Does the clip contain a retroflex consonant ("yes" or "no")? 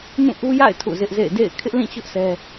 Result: no